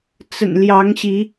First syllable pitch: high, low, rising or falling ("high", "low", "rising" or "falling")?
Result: low